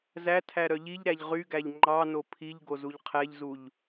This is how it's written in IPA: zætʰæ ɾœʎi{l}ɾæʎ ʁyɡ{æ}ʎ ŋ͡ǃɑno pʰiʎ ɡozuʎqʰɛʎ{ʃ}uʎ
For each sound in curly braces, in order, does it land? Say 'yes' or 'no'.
no, yes, no

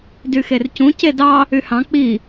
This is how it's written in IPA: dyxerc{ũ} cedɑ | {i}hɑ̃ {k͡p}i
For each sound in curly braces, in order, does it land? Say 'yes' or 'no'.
yes, no, yes

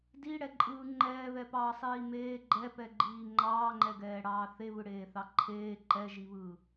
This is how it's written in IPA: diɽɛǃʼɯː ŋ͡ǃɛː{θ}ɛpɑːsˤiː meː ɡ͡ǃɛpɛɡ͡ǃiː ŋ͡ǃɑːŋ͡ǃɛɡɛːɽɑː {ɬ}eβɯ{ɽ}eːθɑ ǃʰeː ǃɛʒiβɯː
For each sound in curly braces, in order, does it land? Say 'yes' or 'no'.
no, no, yes

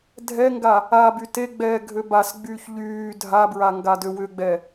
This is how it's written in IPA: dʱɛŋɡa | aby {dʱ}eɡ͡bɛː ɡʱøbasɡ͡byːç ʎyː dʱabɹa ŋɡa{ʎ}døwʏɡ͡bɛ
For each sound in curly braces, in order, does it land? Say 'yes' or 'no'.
no, no

